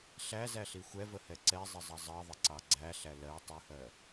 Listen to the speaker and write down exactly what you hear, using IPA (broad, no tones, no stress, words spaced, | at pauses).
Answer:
ɬæzæɬi xʷɛvəhɛ ǀɛzˤɪzˤʌ zˤɜðˤɪǀɑ ɡ͡ǀæɬæ lɜ tˤuhɜ